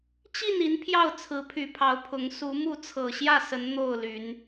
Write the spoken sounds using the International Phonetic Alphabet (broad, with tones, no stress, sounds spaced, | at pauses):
t͡ɕ i˥˨ n i˨˦ n pʰ j ɑ˥˨ ʊ̯ t͡sʰ ɹ̩˨˦ pʰ y˨˩ pʰ ɑ˨˦ ʊ̯ pʰ ʊ˨˦ ŋ s u˨˦ m u˥˨ t͡sʰ ɤ˨˩ ɕ j ä˥˨ s ə˨˦ n n̪ o˥˨ ʊ̯ l y˨˦ n